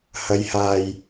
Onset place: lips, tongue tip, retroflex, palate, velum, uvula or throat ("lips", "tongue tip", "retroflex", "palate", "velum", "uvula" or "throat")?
throat